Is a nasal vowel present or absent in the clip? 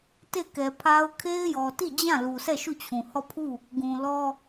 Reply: present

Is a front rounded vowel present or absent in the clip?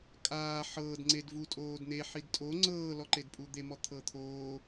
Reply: absent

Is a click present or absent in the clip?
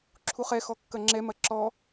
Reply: present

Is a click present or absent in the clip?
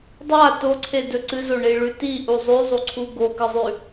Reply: present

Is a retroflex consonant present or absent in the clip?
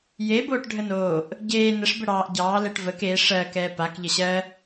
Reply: present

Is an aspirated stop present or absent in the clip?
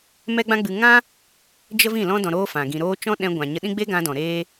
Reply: absent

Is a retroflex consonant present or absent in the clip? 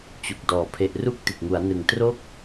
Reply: absent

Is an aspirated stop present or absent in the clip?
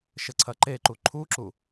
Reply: present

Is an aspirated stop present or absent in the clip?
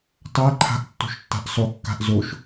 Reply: present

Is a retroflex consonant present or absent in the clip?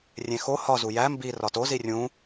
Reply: absent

